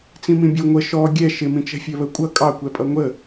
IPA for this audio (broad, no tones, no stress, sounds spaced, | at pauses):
t͡s ĩ m ĩ bʲ ʊ ŋʷ ə ʃ ɔ ɡʲ ɛ ʃ ɪ m ĩ t͡ʃ ɛ̤ fʲ ɜ β ə kʷʼ ʌ kʼ ɑ kʷ ɛ pʼ ʌ ŋʷ ə